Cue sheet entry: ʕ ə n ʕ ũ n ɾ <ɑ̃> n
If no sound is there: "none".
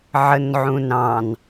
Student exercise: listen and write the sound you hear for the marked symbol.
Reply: ɑ̃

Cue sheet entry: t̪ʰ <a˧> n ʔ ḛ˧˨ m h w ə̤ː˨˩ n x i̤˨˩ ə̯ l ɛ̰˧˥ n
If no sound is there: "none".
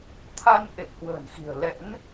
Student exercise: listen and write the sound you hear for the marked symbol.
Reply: a˧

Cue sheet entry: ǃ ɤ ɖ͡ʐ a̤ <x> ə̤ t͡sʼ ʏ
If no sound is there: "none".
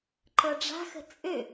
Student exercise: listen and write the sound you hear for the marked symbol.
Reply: x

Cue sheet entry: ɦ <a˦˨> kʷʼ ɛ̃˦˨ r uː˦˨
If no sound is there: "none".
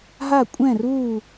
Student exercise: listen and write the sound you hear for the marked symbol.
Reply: a˦˨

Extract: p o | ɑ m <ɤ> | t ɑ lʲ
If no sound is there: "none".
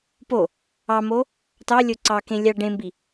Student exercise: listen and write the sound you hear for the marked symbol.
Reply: o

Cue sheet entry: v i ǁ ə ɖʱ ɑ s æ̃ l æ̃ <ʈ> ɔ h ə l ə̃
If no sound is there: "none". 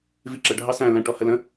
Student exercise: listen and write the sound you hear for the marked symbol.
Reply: ʈ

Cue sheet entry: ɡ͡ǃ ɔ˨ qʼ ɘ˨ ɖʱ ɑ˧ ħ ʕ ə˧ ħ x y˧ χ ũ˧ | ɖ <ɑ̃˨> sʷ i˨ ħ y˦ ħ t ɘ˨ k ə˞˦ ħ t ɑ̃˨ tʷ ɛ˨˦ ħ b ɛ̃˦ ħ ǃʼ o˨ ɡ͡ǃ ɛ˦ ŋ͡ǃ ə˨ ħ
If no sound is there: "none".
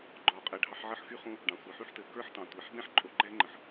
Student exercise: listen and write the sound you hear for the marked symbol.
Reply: ɑ̃˨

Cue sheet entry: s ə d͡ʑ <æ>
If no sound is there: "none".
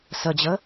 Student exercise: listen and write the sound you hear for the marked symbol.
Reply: ə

